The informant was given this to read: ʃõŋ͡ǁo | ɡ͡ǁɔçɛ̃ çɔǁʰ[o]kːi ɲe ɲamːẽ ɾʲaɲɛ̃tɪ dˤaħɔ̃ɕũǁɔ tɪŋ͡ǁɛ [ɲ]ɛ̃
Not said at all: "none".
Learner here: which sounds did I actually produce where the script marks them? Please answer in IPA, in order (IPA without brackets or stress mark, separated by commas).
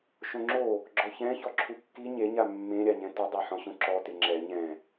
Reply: u, ɲ